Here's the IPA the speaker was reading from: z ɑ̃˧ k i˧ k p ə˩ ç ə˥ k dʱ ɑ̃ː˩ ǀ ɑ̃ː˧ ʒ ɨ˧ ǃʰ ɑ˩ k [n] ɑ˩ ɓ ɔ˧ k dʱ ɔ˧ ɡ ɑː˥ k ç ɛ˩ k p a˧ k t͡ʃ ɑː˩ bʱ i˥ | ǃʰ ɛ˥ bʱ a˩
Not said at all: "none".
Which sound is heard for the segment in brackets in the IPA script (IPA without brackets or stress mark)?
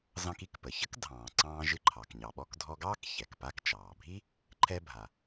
ɲ